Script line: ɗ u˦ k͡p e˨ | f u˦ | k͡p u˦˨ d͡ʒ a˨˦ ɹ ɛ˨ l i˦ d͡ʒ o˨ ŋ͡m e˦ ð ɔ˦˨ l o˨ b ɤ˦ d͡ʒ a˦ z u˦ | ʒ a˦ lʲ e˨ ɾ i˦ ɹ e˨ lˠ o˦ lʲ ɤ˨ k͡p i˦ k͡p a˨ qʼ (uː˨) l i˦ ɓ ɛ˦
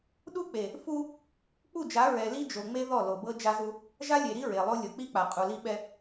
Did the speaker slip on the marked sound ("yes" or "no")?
yes